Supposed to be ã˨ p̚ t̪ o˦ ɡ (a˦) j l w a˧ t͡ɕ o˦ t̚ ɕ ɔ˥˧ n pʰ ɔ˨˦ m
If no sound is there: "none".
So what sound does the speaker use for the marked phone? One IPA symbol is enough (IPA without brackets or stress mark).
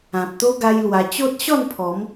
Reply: a˦